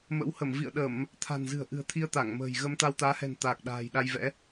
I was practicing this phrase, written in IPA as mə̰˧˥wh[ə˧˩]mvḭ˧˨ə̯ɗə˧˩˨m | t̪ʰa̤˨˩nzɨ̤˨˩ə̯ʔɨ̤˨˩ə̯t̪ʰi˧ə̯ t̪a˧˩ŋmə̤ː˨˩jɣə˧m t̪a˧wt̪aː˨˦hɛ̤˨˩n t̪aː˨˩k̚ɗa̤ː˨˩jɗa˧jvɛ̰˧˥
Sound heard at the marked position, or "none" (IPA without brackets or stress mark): ə˧˩